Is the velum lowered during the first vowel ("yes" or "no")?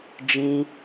yes